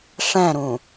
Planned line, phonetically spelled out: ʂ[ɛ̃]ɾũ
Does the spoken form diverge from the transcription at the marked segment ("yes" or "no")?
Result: no